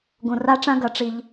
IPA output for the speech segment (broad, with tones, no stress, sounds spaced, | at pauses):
ɡ ũ˩ r a˥ ʈ͡ʂ ã˥ ɡ ɐ˩ ʈ͡ʂ i˩ ʎ